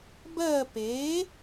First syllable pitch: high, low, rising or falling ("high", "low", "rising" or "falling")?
falling